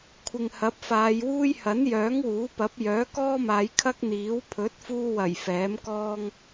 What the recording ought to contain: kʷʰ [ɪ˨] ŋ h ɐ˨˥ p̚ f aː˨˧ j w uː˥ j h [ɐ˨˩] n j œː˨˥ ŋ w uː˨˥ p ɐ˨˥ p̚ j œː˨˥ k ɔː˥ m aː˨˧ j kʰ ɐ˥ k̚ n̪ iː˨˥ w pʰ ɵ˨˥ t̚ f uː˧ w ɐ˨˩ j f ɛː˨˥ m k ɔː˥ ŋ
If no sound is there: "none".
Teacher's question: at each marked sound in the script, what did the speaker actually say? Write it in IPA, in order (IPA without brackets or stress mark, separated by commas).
ɪ˨, ɐ˨˥